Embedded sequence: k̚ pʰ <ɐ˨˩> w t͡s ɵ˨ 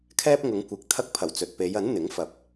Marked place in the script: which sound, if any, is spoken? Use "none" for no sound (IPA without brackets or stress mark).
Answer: ɐ˨˩